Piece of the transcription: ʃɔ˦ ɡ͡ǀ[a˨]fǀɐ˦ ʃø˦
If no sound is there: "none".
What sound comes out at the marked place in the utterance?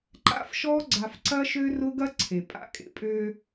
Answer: a˨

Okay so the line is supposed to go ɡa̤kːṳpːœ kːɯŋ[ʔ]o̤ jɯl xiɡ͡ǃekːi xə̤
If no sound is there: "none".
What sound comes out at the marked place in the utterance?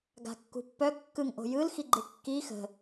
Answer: ʔ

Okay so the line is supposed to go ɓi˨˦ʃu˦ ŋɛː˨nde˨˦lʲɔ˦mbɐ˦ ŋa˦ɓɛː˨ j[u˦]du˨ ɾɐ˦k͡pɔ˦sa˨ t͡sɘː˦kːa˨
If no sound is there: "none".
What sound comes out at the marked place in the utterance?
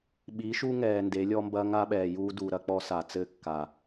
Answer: uː˦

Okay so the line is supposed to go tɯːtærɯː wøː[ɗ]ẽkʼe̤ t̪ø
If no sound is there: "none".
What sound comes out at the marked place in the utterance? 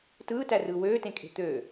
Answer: t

